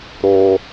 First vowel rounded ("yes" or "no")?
yes